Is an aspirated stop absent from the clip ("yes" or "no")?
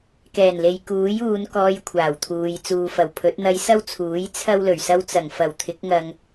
no